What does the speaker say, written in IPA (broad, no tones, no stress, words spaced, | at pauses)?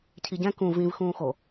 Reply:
cʰiɟɛ̃ kũ vĩv xũːxo